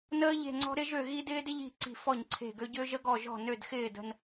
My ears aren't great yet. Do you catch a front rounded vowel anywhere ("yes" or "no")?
yes